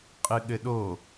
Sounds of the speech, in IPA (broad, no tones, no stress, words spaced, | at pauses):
qʼɨɠɘɗo